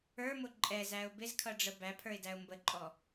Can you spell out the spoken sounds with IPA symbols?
ə˞mʊ ǃʼɛzæʊ̯ bɪzkʰʌɖ͡ʐə bæpʰə˞ɪ̯dæʊ̯ mbəǃʼɔ

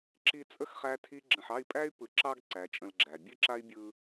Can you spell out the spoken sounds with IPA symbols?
ǁi˧t͡sʼə˦x χæ˦tʰi˦ ɡ͡ǁə̃˨ħɑ˦˨i̯pʼæ˦y̯ pɯ˨ǁɑ˧ɡ ǀæ˨˦t͡ʃʼə̃˧lɡ͡ǁæ˨ bʲɨ˦ǁa˦i̯bʲɯ˧

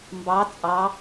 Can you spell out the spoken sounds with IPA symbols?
mbɑ t͡sʼɑ

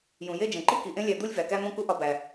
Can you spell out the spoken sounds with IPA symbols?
jũ˩je˥˧d͡ʒẽ˩ǃi˥ ki˩ʔẽ˥lʲæ˧ d̪u˥lʲvæ˩kæ˥n̪õ˥ ku˥ʔɒ˧bæ˩

